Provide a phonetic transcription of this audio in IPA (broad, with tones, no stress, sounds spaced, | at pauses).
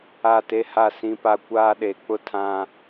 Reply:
a˦˨ t e˦ h a˦˨ s ĩ˦ p a˦ kʷ aː˦ ɗ e˨˦ k͡p ʊ˦ tʰ ã˦